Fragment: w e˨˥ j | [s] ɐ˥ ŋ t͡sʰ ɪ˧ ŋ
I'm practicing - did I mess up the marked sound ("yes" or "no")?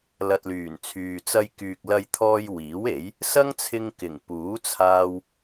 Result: no